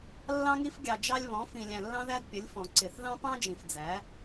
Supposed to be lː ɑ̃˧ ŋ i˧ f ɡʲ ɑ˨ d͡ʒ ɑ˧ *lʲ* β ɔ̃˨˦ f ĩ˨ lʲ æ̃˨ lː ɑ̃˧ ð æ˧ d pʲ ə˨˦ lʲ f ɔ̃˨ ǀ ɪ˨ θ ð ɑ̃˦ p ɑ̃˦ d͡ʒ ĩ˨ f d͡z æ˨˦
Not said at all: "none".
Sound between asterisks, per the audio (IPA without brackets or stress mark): lʲ